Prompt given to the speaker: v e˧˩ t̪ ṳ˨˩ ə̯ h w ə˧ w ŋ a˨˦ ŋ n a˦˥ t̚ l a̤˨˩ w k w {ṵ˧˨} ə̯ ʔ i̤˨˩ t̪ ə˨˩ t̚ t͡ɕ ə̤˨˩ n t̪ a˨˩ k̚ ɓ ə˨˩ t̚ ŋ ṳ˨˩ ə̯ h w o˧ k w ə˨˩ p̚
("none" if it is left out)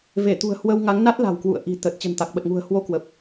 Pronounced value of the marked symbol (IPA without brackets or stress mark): ṵ˧˨